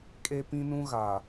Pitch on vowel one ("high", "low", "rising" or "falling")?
high